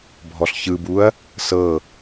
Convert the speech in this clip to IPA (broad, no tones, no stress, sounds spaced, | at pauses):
bʱ ɔ ɬ ç ɯ b u ɐ̯ | s ɤ